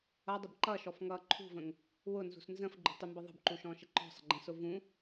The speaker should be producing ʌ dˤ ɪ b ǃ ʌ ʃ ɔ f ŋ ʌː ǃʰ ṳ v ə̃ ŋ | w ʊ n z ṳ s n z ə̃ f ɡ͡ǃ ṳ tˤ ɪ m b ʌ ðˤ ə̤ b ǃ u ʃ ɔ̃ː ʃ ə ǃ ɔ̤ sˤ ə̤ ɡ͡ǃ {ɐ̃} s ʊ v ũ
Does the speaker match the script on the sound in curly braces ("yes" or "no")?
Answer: no